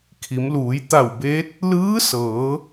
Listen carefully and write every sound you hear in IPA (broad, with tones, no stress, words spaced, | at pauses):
kʰi˩˧mluː˩˧j t̪a˧˩wbeː˧˥t̚ | lɯː˧˥sɤː˩˧